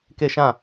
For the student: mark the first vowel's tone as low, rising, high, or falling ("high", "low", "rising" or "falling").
falling